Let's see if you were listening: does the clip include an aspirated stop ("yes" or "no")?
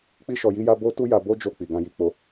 no